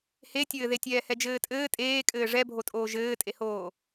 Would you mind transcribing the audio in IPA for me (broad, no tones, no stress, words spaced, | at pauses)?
hetʲɘːðe tʲɛːhɛd͡ʒɘːtʼɘː tʼeːkʼɘː ʐɛbʱotʼoː ʒɘːtʼehoː